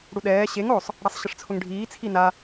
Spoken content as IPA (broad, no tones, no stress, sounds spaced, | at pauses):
ɽ u ɗ ɛː ɕ e ŋ o sˤ | ɽ a sˤ ɕ ɪ ʂ t͡sʰ ʊ ŋ ɖʱ iː t͡sʰ i n a